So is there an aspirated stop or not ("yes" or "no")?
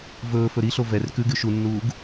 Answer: no